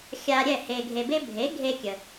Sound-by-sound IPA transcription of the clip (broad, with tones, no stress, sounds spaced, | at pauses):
xʲ a˧ ɾʲ ɛ˥˩ h e˧ ɡʱ e˧ b e˥ bʱ e˩˥ ɡʱ e˧ kʲ ə˩